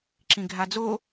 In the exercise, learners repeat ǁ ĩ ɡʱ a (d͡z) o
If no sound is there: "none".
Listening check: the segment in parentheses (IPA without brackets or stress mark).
d͡z